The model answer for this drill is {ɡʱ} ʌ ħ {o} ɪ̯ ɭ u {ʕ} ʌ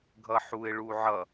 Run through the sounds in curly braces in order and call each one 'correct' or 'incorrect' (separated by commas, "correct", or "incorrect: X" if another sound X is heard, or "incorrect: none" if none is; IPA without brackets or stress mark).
correct, incorrect: u, correct